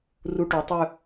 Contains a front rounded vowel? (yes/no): yes